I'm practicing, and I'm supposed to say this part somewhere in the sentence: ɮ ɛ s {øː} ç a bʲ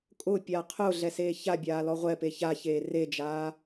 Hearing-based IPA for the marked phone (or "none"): eː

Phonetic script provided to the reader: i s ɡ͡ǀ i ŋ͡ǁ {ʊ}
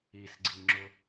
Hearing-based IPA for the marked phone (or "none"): ʊ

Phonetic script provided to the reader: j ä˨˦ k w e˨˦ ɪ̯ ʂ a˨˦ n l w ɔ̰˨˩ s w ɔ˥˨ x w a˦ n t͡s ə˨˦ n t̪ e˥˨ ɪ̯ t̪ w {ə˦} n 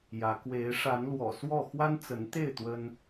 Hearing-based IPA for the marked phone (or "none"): ə˦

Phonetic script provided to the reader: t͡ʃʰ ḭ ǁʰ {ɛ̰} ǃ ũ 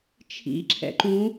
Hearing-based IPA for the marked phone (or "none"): ɛ̰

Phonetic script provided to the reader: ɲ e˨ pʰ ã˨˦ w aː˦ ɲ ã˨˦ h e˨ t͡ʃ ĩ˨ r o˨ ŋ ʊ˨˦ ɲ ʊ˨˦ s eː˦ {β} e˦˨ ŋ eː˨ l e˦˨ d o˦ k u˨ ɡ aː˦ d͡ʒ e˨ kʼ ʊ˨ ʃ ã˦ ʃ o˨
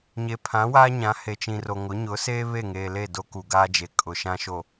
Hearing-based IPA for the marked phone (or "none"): β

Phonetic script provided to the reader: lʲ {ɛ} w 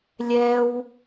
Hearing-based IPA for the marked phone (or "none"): ɛ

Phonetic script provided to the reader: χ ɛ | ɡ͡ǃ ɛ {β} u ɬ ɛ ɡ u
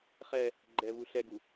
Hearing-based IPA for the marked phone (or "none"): β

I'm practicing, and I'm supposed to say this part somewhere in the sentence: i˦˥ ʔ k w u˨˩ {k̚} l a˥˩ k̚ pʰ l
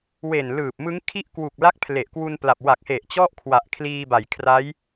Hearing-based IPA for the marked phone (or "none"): k̚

